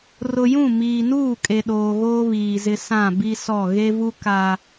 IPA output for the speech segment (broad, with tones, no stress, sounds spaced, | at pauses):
r ʊ˨ j ũ˦˨ m iː˨ n uː˦˨ kʼ e˨ ɗ oː˨ ɣ oː˦ β iː˨ z ɪ˦ s ã˦˨ b i˦ s ɔ˦˨ ɣ e˦ v u˦ k a˨